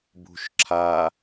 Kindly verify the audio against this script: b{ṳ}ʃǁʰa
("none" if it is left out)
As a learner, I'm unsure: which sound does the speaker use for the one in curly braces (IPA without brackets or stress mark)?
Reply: ṳ